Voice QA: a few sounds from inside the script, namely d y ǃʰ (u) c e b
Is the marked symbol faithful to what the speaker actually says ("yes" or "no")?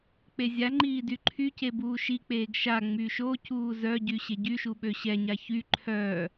no